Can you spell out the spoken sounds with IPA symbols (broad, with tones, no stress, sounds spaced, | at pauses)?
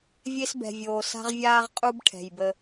vʲ e˦ s b ɛ̤˨ vʲ oː˨ s a̤˦ ʁ vʲ aː˦ ʁ qʼ u˦ b ʈʰ ɛ̤˨ j b ə˦